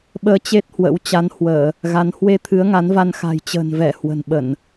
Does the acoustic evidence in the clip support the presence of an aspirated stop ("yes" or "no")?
yes